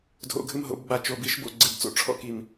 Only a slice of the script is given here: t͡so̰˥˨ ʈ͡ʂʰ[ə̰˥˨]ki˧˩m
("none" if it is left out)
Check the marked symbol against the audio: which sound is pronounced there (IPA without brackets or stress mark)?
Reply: ɔ̰˥˨